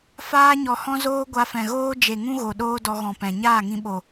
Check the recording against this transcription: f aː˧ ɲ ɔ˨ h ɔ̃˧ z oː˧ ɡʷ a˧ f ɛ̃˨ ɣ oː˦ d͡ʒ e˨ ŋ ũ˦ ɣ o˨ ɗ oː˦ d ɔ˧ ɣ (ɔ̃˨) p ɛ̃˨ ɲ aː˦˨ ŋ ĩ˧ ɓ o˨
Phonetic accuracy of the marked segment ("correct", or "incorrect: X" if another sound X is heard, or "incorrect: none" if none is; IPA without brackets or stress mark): correct